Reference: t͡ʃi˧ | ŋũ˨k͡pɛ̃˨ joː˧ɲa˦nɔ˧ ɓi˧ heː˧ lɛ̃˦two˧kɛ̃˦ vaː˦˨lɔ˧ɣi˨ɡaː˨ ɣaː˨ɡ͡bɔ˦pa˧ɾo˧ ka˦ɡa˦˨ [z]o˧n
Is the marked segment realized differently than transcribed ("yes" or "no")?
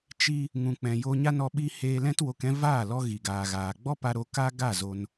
no